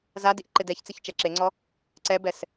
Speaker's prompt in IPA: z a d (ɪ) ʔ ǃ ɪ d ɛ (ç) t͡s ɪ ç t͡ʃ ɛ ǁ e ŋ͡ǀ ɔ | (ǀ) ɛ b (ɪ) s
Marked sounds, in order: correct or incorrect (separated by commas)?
incorrect, correct, correct, incorrect